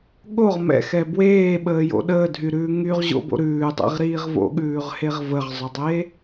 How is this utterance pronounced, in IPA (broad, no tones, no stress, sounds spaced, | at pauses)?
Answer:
ɠ o ʁ m ɛ̰ x ɛ b w eː ɓ əː j o̰ ɗ əː dʱ y ɾ ʉː ŋ y ʁ ʑ o̰ b o̰ ɾ ʉː dˤ ɛ̰ ʁ ɾ iː ʁ v o̰ ɠ ʉː ʁ h e ʁ v ə ʁ zˤ ə dˤ e